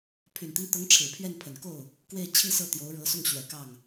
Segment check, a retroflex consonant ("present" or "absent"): present